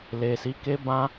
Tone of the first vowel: low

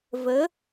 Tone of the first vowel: rising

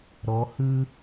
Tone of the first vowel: rising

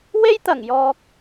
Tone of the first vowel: high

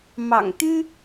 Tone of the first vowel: low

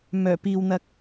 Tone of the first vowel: low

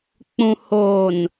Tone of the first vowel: low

